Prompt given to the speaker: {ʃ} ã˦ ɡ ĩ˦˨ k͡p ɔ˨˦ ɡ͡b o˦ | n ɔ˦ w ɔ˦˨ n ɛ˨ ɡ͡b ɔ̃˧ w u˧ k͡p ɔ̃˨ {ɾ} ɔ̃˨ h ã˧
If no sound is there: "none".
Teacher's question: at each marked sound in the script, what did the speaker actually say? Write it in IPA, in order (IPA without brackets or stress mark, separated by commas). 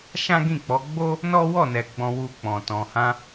ʃ, t